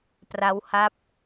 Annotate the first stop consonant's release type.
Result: plain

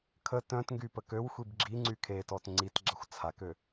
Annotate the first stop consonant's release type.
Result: aspirated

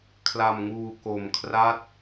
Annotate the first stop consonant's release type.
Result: aspirated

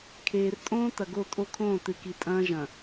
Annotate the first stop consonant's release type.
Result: aspirated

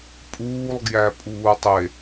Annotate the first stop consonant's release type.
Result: ejective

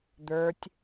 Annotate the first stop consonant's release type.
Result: plain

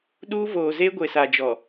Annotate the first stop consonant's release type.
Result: implosive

